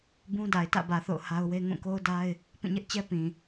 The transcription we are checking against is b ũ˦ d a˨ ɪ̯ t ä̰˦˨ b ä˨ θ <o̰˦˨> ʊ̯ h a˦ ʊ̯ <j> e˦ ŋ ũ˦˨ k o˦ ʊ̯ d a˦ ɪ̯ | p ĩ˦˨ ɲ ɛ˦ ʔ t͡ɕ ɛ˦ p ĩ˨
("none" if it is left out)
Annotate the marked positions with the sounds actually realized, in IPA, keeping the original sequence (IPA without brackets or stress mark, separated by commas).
o̰˦˨, w